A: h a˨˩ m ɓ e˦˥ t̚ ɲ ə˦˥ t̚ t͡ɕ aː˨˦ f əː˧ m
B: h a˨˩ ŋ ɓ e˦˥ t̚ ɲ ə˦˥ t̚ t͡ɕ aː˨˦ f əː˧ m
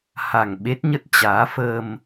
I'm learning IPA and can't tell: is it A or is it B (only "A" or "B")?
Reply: B